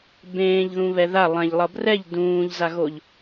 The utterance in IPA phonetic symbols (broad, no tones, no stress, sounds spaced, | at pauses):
b ẽː ʎ ð ũ β ɛ ð a lˠ ɛ̃ ʎ lˠ ʌ b r ɛ ʎ d ũː ʎ z a ɣ o ʎ